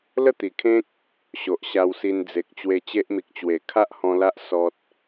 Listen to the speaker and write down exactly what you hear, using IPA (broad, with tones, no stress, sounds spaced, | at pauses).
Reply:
l ə˥˧ t̪ i˨˩ kʰ ẽ˦ k̚ | ɕ o˨ ʔ ɕ a˧ w s i˧ n d͡z e˨ k̚ t͡ɕ w e˧ t͡ɕ e˦ ʔ m i˨ k̚ t͡ɕ w e˨˩ kʰ a˦ ʔ h ɔ̃˧ l a˦ ʔ s ɔ˦ t̚